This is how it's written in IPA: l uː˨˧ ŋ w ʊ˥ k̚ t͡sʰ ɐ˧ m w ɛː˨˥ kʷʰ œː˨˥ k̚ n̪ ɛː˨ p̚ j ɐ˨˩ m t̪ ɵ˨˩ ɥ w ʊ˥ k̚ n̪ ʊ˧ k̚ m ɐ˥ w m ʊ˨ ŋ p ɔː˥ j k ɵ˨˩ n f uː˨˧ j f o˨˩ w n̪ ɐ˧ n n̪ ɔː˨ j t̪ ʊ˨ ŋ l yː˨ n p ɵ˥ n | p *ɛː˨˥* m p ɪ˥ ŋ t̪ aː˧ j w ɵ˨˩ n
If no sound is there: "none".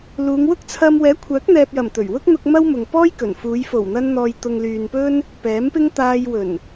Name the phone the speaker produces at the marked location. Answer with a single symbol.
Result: ɛː˨˥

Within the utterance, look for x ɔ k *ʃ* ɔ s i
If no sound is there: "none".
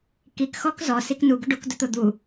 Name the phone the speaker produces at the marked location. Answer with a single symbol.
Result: z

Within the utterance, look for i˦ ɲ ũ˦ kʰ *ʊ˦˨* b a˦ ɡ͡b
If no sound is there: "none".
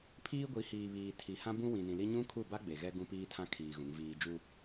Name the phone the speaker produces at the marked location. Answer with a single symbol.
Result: u˦˨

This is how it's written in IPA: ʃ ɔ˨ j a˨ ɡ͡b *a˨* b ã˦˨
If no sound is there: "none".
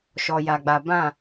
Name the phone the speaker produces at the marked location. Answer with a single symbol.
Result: a˨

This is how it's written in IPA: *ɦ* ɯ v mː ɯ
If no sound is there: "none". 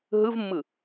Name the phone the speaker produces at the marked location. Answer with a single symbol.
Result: ɦ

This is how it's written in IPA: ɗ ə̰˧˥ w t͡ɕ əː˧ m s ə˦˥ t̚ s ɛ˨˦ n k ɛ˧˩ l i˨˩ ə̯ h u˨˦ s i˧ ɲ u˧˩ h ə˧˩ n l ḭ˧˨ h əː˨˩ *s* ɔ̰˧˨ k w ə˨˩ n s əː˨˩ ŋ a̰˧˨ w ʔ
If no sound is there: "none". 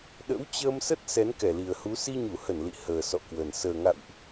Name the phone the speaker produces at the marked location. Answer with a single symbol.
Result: s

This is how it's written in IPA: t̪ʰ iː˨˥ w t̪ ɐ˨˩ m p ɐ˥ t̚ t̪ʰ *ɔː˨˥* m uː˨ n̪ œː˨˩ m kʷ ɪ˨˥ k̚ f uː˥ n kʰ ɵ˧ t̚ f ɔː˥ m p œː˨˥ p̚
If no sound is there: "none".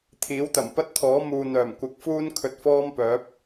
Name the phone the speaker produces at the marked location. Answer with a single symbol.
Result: ɔː˨˥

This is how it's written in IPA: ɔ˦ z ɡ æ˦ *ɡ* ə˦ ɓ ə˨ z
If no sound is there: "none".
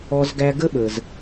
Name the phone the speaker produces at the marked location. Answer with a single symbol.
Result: ɡ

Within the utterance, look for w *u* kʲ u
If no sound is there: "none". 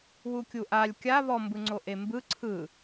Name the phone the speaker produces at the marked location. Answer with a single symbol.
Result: u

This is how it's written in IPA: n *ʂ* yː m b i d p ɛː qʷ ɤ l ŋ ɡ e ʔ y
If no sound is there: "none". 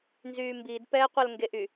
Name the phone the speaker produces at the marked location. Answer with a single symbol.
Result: z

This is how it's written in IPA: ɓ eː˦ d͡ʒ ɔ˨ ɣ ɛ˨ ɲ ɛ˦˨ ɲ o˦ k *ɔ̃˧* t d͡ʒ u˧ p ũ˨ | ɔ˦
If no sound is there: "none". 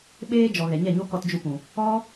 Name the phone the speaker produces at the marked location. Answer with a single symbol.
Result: ɔ˧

